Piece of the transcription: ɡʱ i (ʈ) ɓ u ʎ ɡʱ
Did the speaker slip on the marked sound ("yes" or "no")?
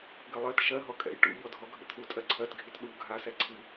yes